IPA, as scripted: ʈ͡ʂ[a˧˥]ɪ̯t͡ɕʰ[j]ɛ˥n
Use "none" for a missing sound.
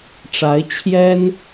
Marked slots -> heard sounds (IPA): a˧˥, j

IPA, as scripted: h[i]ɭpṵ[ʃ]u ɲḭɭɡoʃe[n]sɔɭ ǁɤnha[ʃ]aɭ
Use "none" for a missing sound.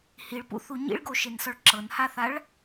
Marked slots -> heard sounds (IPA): i, θ, n, θ

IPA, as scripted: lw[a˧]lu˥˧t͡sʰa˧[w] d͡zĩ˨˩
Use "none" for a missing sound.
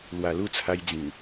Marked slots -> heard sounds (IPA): a˨˩, j

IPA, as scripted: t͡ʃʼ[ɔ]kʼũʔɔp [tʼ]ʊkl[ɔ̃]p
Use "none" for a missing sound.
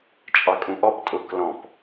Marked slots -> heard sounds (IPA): ɑ, tʼ, ɔ̃

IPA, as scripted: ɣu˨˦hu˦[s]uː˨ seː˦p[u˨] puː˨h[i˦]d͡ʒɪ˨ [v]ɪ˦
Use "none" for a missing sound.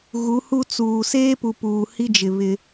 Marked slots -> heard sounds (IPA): t͡s, u˨, i˦, β

